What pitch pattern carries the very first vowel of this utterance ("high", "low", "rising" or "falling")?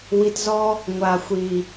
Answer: low